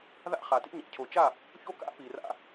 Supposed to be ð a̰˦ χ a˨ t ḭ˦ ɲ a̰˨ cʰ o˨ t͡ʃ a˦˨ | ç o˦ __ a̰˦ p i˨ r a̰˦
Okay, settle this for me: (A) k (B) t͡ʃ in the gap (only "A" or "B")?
A